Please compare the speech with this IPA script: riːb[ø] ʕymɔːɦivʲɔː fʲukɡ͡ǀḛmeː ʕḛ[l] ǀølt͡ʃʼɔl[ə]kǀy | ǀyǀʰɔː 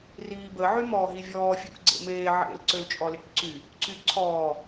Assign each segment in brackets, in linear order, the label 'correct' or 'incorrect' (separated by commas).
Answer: incorrect, correct, incorrect